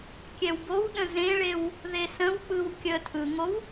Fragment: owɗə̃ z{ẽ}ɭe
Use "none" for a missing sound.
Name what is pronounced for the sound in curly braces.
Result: ẽ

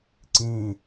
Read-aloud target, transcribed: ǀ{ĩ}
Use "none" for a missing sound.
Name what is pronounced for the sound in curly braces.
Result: ĩ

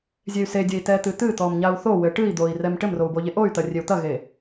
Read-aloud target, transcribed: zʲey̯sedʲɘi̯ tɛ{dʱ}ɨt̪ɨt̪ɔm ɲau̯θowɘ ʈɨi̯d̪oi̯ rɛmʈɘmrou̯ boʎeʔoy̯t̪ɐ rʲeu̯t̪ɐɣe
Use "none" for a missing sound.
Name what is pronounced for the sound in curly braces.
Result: t̪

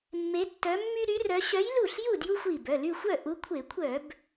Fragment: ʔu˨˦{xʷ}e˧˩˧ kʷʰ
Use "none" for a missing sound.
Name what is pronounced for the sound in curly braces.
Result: kʷʰ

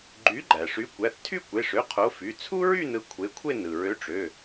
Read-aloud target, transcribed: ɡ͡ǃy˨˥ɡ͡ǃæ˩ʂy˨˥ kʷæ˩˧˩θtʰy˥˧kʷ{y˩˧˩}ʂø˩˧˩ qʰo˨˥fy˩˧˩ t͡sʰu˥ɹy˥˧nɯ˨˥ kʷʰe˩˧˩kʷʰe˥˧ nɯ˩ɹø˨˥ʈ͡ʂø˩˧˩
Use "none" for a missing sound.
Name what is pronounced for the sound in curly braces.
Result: e˩˧˩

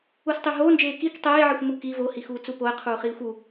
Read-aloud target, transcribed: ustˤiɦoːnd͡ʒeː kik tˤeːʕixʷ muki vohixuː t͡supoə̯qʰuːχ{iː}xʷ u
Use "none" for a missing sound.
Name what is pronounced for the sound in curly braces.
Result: iː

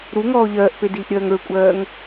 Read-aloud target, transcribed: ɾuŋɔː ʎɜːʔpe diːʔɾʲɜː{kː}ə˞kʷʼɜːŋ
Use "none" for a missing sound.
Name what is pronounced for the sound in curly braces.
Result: ŋ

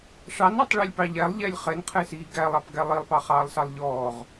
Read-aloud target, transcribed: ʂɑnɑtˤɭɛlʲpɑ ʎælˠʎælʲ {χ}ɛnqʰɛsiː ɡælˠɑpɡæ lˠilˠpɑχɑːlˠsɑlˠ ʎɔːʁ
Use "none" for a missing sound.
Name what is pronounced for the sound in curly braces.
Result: χ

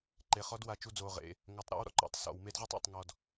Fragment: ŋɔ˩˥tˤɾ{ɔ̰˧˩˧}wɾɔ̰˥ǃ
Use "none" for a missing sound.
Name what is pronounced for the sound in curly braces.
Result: ɔ̰˧˥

